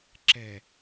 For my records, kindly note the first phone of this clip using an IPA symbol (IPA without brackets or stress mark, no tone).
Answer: ǁ